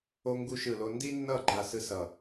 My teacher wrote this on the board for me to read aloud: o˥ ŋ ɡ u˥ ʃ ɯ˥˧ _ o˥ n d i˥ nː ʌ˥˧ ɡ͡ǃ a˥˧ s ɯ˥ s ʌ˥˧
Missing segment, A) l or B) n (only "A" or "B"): A